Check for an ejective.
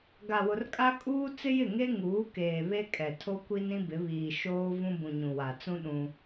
present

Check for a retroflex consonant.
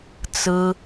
absent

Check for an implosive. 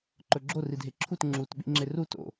present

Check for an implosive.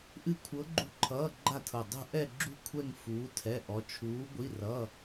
absent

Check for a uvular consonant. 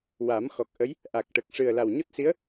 absent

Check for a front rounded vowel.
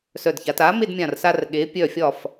present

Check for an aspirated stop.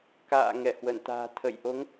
present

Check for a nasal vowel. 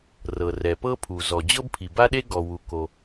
absent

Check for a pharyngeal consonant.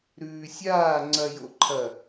absent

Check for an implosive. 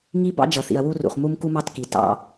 absent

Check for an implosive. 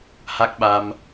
present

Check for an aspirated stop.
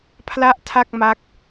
present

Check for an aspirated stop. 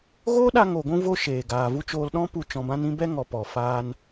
absent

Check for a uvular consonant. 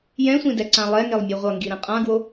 present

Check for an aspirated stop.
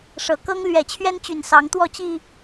present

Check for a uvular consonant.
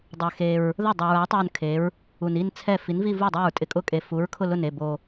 absent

